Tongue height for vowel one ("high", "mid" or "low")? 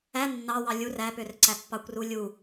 low